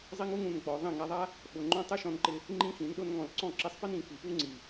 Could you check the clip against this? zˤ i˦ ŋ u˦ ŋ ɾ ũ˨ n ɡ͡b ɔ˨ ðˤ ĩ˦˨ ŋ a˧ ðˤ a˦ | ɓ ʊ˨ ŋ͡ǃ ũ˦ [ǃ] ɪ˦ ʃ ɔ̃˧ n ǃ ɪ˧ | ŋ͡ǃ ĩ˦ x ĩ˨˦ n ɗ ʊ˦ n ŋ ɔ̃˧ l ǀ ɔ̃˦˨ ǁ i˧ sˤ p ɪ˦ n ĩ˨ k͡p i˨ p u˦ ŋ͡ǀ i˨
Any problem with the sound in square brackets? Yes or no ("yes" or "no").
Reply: yes